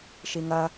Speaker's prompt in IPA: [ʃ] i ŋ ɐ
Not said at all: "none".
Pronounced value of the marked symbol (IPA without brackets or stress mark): ʃ